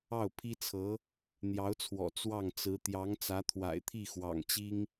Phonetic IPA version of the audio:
ɑ˥˩ ʊ̯ pʰ i˥ t͡sʰ ɤ˧˥ | n̪ j ɑ˧˥ ʊ̯ t͡sʰ w ɔ̰˨˩ t͡s w ɑ˥˩ ŋ t͡s ɹ̩˧˥ t̪ j ɑ˧˥ ŋ t͡s ä˧˥ t̪ʰ w a̰˨˩ ɪ̯ t̪ʰ i˥˩ x w ɑ̰˨˩ ŋ t͡ɕ i˥ ŋ

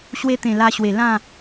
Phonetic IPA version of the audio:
ɕ w e˧ t̪ ẽ˨˩ l a˧ ɕ w e˨˩ l ã˥˧

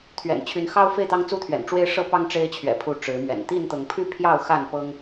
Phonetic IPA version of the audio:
t̪ʰ ɥ ɛ̰˨˩ n t͡ɕʰ y˨˦ n x ɑ˦ ʊ̯ f e˥˨ ɪ̯ t̪ ɑ˦ ŋ t͡s u˥˨ t̪ʰ ɥ ɛ̰˨˩ n ʈ͡ʂ w e˦ ɪ̯ ʂ ɤ˦ p ɑ˦ ŋ ʈ͡ʂ e˦ ɪ̯ t͡ɕʰ ɥ ɛ̰˨˩ pʰ u˨˦ ʈ͡ʂ ɻ̩˨˦ m ɥ ɛ̰˨˩ n t̪ i˥˨ n t̪ ɤ˨˦ ŋ pʰ y˥˨ pʰ j ɑ˥˨ ʊ̯ x a˥˨ n p ɤ˦ ŋ

